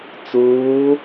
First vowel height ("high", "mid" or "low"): high